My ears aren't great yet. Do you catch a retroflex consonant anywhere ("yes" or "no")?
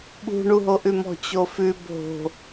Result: yes